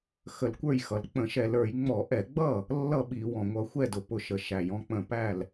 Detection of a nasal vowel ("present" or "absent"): present